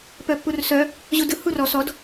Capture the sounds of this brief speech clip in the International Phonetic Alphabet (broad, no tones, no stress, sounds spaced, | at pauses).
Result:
p œ pː u r s œ | ʑ u d ɯ h u r ɔ s ɔ d